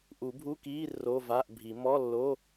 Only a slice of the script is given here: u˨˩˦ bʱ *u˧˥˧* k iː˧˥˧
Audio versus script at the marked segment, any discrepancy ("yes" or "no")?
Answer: no